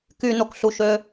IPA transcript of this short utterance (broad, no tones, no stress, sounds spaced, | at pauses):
k y n o k ɬ u ʃ ø